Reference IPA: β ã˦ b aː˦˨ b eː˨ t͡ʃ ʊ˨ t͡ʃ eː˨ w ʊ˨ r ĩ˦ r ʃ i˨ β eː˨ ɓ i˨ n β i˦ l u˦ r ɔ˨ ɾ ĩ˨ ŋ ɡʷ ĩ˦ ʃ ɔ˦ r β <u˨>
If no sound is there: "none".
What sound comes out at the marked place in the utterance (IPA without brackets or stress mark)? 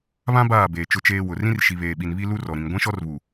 u˨